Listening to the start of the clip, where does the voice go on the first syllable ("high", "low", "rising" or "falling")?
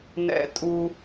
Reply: high